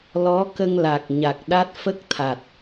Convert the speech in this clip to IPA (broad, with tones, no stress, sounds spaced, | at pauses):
l ɔ˧˥ k ə˧ ŋ l a˨˩ k̚ ɲ a˨˩ k̚ ɗ a˦˥ t̚ f ə˦˥ k̚ t̪ʰ a˨˩ t̚